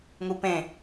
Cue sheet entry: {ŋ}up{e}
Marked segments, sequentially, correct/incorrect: correct, incorrect: ẽ

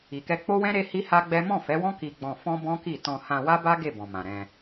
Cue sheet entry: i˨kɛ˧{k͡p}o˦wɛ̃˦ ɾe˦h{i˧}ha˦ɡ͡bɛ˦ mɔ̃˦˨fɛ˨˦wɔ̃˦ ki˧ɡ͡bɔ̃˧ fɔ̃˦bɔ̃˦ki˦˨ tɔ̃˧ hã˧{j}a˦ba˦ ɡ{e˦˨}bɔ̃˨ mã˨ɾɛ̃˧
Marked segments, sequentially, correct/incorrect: correct, incorrect: i˦, incorrect: w, correct

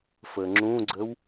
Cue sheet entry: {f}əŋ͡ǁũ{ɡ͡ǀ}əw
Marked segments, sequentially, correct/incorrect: correct, correct

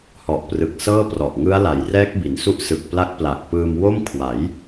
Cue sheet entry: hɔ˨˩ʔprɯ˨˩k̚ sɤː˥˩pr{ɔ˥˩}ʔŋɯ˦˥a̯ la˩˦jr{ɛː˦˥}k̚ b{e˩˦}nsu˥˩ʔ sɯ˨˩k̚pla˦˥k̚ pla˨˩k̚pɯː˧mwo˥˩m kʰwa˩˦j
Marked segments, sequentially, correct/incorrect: incorrect: ɔ˨˩, correct, incorrect: i˩˦

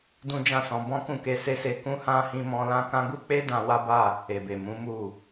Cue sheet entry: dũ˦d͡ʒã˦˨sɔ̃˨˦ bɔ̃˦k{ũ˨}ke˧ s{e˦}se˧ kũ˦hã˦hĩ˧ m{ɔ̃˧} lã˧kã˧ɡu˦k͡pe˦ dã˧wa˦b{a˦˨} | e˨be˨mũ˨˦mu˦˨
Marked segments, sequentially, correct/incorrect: incorrect: ũ˦˨, correct, correct, correct

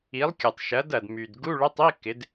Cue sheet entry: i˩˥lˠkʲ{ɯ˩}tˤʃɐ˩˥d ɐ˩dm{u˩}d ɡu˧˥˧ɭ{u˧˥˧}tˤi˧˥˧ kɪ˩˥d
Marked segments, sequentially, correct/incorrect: incorrect: ʊ˩, incorrect: y˩, incorrect: ʊ˧˥˧

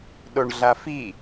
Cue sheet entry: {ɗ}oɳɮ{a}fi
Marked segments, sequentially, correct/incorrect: correct, correct

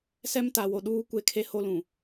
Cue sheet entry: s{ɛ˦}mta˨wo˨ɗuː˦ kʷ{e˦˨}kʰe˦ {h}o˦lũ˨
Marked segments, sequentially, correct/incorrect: correct, correct, correct

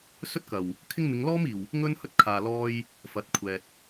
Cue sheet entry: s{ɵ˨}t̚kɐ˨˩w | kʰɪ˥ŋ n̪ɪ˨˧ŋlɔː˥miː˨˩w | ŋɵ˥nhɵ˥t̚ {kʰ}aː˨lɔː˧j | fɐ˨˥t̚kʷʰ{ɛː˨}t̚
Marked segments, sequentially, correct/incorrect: incorrect: ɵ˥, correct, correct

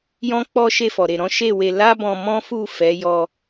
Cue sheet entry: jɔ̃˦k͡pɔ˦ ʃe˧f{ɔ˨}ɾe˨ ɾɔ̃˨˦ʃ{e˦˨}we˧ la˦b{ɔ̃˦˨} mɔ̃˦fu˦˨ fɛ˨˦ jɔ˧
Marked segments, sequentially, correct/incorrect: correct, correct, incorrect: ɔ̃˧

